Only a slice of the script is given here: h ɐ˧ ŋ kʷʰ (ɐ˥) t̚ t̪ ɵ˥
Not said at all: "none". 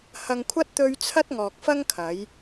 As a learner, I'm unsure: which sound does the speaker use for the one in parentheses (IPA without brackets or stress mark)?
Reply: ɐ˥